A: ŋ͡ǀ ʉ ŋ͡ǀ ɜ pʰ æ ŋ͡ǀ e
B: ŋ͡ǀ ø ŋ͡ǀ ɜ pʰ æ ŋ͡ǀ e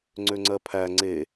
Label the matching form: B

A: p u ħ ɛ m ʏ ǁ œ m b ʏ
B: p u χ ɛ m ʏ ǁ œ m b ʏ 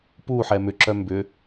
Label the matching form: A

